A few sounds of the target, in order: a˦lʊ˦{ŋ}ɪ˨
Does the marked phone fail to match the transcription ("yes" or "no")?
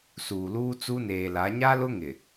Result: no